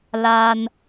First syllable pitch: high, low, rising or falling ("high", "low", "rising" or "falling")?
high